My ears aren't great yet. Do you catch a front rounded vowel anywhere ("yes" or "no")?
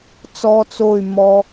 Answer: yes